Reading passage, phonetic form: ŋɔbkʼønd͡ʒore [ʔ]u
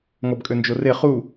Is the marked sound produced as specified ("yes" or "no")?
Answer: no